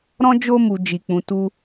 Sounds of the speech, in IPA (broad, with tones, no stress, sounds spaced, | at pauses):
ɾ ɔ̃˦ d͡ʒ o˦ m u˧ d͡ʒ i˧ k͡p ũ˧ t u˦